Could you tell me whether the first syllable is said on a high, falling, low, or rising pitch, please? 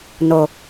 low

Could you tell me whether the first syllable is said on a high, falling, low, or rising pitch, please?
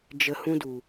low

